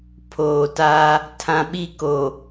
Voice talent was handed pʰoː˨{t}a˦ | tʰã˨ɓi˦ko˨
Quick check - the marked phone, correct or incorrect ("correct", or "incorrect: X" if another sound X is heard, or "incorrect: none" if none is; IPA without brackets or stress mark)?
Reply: correct